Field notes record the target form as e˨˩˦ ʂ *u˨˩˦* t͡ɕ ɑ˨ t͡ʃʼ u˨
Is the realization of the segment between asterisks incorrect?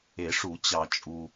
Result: no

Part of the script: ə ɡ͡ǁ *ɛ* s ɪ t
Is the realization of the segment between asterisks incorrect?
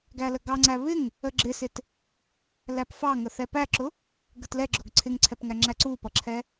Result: yes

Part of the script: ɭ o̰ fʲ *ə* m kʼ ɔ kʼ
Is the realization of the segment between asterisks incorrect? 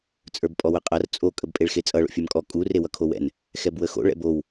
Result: yes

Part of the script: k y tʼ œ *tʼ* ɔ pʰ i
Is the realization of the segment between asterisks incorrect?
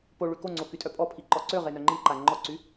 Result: yes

